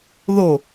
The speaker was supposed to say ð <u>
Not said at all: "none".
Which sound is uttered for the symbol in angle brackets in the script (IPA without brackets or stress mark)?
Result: o